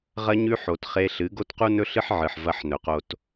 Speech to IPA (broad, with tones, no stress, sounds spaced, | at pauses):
ʁ ɐ˦ ɲ ʉ˦ ħ o˨ t χ e˧ ɬ ɨ˨˦ ɡ o˦ t q u˦ n ɵ˦ ɬ ɨ˦ ħ ʕ ɨ˨ ħ v ɐ˦ ħ n ɵ˨ q o˧ t